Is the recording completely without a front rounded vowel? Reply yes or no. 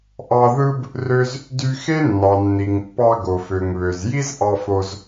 no